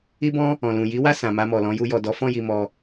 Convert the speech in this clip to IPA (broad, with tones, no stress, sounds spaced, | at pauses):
i˦ b ɔ̃˦ | ɔ̃˨ l ũ˨ j i˨˦ w a˦˨ s ã˨ m a˧ m ɔ˨ l ɔ̃˨˦ j u˧ j ɔ˨ d ɔ˨˦ f ɔ̃˦˨ j i˨ m ɔ˧